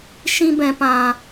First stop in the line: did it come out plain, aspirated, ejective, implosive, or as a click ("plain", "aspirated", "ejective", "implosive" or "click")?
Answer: plain